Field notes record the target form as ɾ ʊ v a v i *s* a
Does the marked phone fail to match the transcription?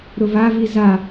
yes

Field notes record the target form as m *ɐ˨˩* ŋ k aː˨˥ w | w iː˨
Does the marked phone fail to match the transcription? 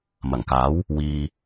no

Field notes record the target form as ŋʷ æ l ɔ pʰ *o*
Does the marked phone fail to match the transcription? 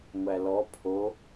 no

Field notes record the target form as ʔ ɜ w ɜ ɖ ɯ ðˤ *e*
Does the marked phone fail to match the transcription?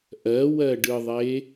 no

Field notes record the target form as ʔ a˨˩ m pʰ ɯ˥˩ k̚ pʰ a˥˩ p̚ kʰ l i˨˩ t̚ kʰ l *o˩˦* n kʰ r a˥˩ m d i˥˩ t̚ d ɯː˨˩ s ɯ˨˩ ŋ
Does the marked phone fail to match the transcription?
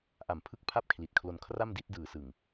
yes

